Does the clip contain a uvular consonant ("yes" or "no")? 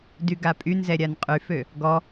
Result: yes